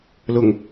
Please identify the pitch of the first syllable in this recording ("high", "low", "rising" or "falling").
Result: low